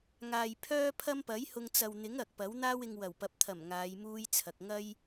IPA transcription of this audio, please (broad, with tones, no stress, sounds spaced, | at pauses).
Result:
ŋ aː˨ j pʰ œː˥ pʰ ɐ˥ m p ɐ˨˥ j h ʊ˧ ŋ t͡s ɐ˨ w n̪ ɪ˨˥ ŋ ɐ˨ k̚ p ɐ˨˥ w n̪ aː˥ w ɪ˧ ŋ w ɐ˨˩ w p ɐ˨˥ p̚ t̪ʰ ɐ˨˩ m ŋ aː˨˧ j m uː˥ j t͡sʰ ɐ˨ k̚ ŋ ɐ˥ j